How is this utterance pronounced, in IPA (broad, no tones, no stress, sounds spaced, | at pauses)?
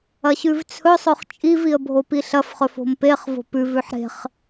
ɐ ɕ ʉ v t͡sʰ ɵ sˤ ɵ χ t͡ʃʼ i v i ə̯ bʱ o p i ɬ ɐ f χ ɵ f o̤ m p e χ v o̤ p ʉ v ʉ ħ ɾ e̤ χ